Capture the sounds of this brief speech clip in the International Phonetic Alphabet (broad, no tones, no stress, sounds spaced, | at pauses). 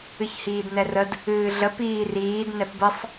ɨ ç h iː d n ɛ r ə d | ɨː ɮ ə p iː r iː d n ɛ p b ə sˤ